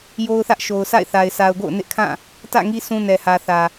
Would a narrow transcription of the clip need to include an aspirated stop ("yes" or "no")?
yes